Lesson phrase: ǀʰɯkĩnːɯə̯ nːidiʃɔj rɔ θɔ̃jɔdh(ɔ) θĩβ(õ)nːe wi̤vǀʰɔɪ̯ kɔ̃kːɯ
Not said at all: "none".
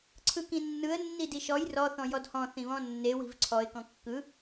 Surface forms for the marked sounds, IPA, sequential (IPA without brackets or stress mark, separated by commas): ɔ̃, ɔ̃